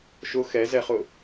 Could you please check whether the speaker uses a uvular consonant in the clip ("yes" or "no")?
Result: yes